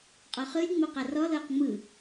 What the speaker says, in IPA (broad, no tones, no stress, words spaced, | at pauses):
qʼɔχɯlʲ ŋ͡moqarɔ lɤːqŋ͡mɯ